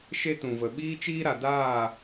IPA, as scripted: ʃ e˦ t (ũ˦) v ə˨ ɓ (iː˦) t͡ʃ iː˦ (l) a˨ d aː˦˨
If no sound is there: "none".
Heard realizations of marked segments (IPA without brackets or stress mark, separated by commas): ũ˨, iː˦, ɾ